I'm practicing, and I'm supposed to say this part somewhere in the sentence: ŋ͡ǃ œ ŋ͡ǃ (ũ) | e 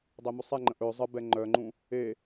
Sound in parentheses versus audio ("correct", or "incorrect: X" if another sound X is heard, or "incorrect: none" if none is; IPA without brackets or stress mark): correct